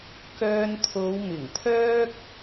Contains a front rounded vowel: yes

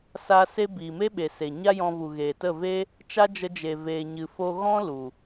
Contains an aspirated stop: no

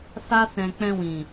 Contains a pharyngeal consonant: no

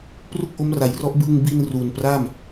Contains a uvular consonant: no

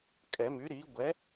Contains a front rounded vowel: yes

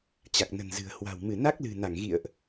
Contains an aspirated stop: no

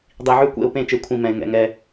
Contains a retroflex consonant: no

